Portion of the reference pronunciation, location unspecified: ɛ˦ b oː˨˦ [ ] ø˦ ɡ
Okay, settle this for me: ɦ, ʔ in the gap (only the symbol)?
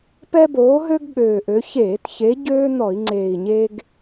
ɦ